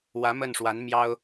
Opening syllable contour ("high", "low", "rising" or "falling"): rising